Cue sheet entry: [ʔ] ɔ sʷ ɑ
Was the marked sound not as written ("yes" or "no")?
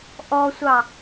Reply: no